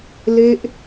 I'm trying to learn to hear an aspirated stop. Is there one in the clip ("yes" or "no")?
no